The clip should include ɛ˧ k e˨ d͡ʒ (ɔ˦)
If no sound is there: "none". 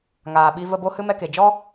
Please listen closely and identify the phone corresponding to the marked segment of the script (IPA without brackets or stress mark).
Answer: ɔ˦